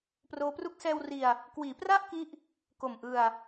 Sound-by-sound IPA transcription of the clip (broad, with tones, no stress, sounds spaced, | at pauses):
p r oː˦˥ p r u˥˩ k̚ s ɛː˧ w r i˧ a̯ | k w iː˩˦ p r a˥˩ ʔ k i˦˥ ʔ | k o˨˩ m ʔ ɯ˧ a̯